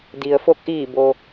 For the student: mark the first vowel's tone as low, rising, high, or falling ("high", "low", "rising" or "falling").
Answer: low